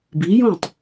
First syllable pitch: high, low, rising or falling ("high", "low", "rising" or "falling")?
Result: rising